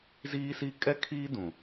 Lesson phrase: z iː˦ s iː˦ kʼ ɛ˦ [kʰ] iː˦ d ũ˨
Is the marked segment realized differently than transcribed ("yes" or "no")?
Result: no